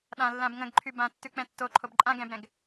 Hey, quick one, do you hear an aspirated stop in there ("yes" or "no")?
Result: yes